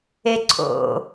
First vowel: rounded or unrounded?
unrounded